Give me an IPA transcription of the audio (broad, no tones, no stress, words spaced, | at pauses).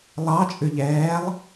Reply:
lˠɑt͡ʃʼʉ ʎɛːlˠ